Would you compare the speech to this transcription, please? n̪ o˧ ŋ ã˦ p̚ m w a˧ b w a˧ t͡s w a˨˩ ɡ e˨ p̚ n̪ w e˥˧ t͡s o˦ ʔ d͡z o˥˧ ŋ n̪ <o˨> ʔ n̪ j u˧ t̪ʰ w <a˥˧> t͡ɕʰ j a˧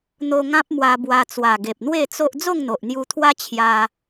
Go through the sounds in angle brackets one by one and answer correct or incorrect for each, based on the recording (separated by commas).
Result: correct, incorrect